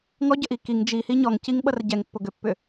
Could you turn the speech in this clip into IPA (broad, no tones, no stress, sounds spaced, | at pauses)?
ŋ ɔ ɟ ə ʔ i k i ŋ d͡ʒ i h i ɲ ɔ ŋ c i ŋ ɓ ʌ r ɟ ɛ ŋ pː o ɡ ʏ pː ʏ